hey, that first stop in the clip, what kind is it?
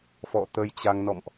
plain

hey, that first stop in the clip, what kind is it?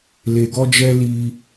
plain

